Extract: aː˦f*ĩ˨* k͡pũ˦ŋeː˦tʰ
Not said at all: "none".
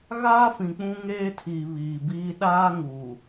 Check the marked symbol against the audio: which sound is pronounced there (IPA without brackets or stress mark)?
ĩ˨